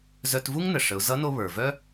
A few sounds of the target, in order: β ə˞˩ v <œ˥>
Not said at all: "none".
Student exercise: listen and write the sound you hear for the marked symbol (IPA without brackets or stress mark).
œ˥